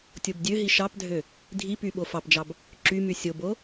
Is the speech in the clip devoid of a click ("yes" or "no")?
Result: no